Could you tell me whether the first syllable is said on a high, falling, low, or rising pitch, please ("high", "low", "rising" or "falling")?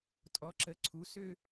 rising